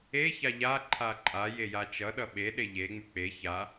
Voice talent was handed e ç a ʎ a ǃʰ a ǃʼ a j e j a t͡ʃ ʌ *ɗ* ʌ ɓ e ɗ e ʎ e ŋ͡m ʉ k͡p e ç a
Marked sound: correct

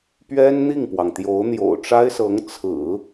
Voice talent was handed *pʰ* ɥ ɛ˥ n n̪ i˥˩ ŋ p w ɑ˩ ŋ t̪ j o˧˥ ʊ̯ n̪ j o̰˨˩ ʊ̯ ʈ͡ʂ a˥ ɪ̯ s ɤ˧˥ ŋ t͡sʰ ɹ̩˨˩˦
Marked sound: incorrect: p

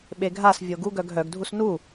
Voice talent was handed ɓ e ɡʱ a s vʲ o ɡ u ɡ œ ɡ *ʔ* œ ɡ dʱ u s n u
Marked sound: incorrect: ɦ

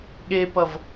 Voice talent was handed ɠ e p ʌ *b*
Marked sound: incorrect: v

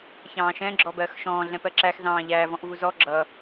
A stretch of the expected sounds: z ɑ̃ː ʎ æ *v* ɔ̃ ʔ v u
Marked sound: correct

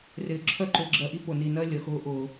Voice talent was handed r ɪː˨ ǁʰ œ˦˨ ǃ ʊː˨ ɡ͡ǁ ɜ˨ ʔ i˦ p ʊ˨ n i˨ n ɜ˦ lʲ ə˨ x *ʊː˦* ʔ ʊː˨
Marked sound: correct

